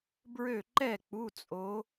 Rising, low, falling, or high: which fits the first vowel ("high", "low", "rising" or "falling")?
falling